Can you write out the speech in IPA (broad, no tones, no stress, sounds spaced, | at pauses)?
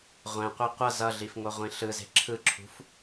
ʁʷ ɛ̃ qʷ e qʷ ʌ z ʌ ɮ i f ŋ o ʁʷ ĩ ɬ ɯ z e̤ ǁʰ ɯ ǁʰ ṳ f